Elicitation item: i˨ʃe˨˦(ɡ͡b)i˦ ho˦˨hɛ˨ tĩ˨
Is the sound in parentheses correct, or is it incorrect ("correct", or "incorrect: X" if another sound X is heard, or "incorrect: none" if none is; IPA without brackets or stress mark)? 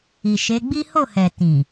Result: correct